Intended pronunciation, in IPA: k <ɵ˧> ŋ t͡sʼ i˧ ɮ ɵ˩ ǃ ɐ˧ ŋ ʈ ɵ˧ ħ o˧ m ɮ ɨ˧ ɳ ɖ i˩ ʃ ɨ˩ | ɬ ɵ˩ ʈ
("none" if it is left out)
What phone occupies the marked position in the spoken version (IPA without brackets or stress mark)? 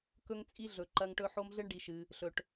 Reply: ɵ˧